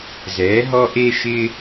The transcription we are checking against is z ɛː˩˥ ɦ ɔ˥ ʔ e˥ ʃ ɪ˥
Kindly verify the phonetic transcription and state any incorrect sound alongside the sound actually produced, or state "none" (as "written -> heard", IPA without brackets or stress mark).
none